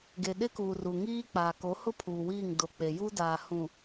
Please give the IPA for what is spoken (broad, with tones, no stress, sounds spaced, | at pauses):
ɡ e˨ ɗ ɪ˦ k uː˨ r u˨ ŋ iː˦ k͡p aː˨ k o˨˦ h ʊ˦ pʰ uː˨ w iː˦˨ ŋ d o˨ k͡p e˨ j uː˦ d aː˨ h ũ˨